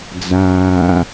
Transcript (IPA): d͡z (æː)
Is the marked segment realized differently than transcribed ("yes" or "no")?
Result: yes